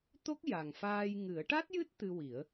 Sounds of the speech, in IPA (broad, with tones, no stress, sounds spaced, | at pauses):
t̪ o˦˥ k̚ j a˨˩ ŋ f aː˧ j ŋ ɨ˨˩˦ ə̯ ʈ a˦˥ t̚ j ɨ˦˥ t̚ t̪ ɨ˧ w i˨˩˦ ə̯